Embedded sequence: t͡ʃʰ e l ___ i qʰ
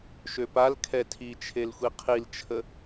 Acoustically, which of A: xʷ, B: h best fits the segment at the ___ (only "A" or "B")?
A